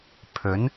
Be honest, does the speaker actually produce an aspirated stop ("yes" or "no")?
yes